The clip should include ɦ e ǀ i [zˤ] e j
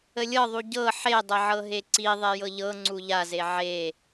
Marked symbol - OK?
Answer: no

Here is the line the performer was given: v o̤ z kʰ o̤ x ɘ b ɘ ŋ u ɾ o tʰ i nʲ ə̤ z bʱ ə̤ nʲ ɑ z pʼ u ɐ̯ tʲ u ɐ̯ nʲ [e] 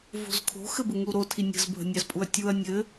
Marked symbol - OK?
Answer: no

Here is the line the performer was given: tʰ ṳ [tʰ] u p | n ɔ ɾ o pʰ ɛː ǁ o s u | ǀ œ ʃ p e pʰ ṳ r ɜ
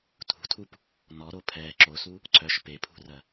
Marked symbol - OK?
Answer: yes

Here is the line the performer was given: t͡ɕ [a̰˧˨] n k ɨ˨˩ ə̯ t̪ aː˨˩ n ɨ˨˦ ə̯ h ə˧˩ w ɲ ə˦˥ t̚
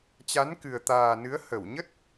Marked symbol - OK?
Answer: no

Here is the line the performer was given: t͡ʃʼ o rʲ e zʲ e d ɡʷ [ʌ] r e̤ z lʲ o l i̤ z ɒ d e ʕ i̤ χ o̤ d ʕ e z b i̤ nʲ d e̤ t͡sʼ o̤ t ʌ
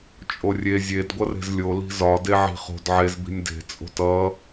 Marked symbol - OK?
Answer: yes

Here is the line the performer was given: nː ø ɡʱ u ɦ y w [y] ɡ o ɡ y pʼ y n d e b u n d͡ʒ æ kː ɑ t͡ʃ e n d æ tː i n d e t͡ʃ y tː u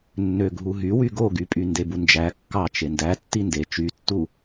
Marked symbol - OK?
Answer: yes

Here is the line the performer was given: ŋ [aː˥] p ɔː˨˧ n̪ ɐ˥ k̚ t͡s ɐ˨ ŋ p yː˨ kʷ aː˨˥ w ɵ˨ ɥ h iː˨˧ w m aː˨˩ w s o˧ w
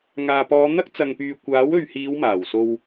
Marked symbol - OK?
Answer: no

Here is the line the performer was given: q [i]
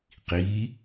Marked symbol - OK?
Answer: yes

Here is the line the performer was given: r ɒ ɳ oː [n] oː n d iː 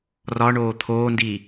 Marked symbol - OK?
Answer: no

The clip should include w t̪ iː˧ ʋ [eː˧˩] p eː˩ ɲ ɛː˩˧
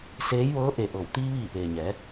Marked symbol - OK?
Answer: no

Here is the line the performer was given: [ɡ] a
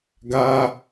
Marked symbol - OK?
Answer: yes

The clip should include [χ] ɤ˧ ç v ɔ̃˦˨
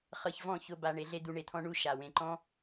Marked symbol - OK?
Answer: yes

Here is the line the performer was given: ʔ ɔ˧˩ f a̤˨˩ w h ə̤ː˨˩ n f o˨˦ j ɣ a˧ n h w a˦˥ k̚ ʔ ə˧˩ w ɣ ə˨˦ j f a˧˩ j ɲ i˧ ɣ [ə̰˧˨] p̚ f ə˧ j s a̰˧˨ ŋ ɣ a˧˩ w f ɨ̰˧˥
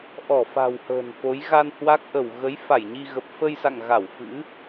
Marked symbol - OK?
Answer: no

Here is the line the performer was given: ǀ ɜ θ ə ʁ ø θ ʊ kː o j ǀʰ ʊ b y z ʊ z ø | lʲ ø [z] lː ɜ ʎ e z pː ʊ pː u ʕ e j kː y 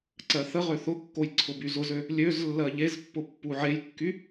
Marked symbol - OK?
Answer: yes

